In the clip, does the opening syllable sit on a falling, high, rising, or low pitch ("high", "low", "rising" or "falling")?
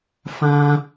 high